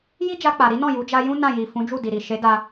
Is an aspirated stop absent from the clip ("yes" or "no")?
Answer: yes